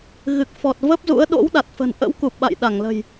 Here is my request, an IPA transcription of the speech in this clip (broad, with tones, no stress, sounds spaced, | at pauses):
ɣ ɨ˨˩ k̚ f ɔ˨˩ t̚ v ə˦˥ p̚ z ṵ˧˥ ə̯ ɗ o̰˧˥ w ɗ a˨˩ t̚ f ə̤˨˩ n ʔ ə̰˧˥ w k u˨˩ p̚ ɓ a̰˧˨ j ɗ a˧˩ ŋ l ə̤˨˩ j